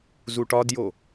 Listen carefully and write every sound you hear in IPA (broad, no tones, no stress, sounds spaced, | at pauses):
z u ʈ ɒ d j o